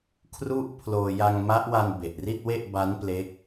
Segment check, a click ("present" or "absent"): absent